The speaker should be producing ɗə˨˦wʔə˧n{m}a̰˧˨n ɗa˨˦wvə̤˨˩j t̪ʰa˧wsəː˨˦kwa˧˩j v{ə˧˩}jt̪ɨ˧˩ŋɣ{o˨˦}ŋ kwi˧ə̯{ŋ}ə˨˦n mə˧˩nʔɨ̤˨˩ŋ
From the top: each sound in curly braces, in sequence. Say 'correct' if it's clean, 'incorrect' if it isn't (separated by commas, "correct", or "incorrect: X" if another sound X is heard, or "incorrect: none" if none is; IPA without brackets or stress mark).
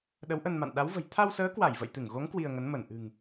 correct, incorrect: ə̰˧˨, correct, correct